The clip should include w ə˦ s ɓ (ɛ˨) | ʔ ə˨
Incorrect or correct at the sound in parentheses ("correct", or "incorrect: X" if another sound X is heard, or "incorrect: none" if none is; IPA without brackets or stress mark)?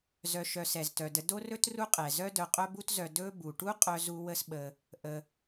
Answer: incorrect: ə˨